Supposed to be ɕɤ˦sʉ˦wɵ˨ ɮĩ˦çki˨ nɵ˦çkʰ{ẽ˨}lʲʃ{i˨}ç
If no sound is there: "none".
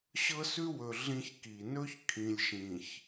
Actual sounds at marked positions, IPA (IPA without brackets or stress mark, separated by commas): ĩ˨, ĩ˨